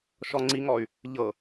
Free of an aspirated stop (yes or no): yes